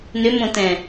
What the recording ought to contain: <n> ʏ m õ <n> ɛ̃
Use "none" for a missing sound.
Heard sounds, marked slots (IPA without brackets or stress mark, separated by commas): n, t